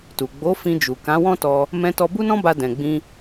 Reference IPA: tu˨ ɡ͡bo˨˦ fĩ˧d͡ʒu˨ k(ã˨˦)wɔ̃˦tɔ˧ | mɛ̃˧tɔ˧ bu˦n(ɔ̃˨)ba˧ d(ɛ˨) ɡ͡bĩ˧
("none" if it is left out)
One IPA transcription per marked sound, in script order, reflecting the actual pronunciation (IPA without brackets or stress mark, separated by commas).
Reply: ã˨˦, ɔ̃˦, ɛ̃˨